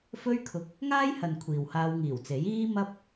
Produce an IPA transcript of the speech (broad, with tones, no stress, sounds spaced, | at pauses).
f ɵ˥ ɥ kʰ ʊ˧ k̚ | ŋ aː˥ j h ɐ˨ n kʷʰ iː˨ w h aː˧ w ŋ iː˨˩ w t͡s e˨˥ j iː˧ m ɐ˧ p̚